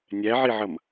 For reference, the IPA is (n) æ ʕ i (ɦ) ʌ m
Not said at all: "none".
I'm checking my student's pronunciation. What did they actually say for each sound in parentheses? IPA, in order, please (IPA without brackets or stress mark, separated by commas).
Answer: nʲ, ʕ